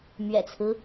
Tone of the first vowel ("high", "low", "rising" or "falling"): low